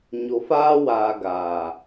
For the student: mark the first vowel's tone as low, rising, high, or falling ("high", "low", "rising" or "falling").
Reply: low